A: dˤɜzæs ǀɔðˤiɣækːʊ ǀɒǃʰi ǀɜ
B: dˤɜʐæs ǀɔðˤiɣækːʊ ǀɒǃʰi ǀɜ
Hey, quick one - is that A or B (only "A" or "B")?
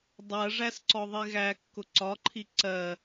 B